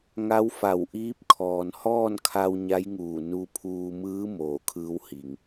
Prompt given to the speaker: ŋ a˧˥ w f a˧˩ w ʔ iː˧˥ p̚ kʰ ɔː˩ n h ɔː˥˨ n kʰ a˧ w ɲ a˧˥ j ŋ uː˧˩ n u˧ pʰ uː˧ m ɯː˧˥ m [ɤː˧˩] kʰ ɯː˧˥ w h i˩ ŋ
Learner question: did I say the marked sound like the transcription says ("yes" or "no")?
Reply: no